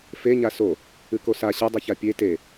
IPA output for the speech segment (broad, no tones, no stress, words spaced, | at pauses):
fe ɲaso | ɨkosa ɕɨdˤɨça pʲe te